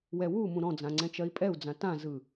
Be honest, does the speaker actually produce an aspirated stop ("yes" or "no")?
no